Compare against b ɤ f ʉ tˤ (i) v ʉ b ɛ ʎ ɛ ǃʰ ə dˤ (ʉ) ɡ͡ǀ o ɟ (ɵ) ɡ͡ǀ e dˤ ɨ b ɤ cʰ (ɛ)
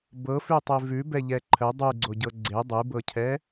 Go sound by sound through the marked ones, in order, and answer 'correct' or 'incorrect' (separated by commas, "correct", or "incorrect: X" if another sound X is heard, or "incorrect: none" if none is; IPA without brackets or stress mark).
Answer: incorrect: e, correct, incorrect: ɤ, correct